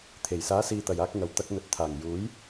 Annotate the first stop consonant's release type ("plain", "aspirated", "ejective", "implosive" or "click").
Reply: aspirated